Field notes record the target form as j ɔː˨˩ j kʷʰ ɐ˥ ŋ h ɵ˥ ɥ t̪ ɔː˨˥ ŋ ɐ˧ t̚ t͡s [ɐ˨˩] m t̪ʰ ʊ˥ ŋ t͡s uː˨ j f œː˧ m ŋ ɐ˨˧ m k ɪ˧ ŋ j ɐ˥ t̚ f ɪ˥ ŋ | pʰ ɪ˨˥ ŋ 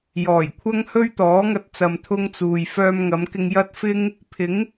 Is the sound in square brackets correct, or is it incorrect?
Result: incorrect: ɐ˨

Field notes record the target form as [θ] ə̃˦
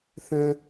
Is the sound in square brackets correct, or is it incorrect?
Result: correct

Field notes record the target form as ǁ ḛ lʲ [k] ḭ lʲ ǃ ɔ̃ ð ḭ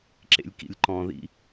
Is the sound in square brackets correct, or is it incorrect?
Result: correct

